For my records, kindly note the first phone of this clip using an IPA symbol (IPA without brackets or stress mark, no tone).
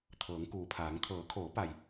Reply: t̪ʰ